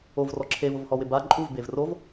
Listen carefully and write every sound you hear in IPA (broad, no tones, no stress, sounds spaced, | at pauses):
o v r ɔ ǁʰ e v ʊ v h ɔ w ɪ b a ǃʼ u v b e v r o v